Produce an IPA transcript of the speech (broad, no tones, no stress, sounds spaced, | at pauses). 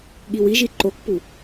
ɠ i w i ʒ i ǃ o k p u